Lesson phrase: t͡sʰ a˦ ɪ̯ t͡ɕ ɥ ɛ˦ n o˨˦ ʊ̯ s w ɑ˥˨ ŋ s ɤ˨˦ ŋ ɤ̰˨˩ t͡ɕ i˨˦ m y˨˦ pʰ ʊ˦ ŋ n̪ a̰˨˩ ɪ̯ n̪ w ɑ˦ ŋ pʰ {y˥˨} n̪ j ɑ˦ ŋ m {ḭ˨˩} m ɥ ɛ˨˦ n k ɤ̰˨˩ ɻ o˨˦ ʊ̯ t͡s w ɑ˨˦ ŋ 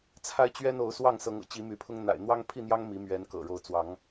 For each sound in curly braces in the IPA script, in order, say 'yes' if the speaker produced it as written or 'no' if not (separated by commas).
no, no